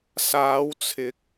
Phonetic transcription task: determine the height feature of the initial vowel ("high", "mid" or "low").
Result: low